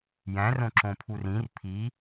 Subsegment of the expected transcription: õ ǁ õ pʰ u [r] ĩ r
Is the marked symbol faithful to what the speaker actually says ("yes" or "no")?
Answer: yes